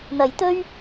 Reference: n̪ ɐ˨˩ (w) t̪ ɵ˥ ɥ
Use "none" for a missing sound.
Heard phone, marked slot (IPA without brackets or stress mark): j